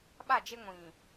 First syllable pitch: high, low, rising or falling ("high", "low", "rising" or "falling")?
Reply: falling